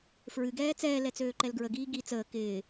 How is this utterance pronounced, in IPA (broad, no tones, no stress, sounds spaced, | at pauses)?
f ɹ ɨ ɡ ɛː t͡s ɛː l ɛ t͡s øː ǃ ɛ l ɡ ɹ ə ɡ iː ɡ i t͡s əː k ɪː